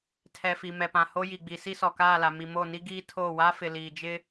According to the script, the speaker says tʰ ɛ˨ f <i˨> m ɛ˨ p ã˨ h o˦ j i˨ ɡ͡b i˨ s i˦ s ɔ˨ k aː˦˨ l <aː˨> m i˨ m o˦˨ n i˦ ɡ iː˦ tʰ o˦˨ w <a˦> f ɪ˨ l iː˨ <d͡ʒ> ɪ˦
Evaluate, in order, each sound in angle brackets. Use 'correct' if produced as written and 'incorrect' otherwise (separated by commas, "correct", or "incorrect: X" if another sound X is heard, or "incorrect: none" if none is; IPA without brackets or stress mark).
correct, incorrect: a˨, correct, correct